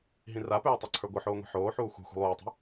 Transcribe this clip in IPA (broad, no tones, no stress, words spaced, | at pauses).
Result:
ɦĩrapøː tˤaǀʰə˞ɡʷɨħoː ŋʷɛ̤ħoːħuː xʷɛ̤ xʷɛ̤lˠuːtˤɛ̤